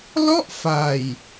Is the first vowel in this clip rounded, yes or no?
yes